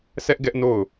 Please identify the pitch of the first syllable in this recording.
high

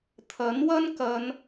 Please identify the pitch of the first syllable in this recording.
rising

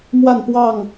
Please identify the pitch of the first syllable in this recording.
falling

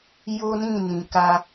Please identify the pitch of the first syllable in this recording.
high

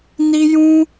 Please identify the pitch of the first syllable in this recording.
high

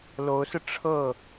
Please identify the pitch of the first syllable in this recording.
rising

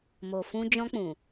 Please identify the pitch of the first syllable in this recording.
low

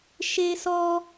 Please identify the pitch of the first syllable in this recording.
high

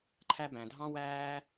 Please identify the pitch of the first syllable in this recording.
high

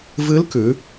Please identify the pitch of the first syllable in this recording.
rising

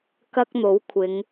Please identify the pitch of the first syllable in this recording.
high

